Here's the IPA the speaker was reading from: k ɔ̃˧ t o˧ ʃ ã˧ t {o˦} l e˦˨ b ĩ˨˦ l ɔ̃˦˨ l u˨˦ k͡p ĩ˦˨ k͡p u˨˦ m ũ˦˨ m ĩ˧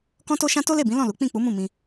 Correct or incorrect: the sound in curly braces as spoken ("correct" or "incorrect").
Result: correct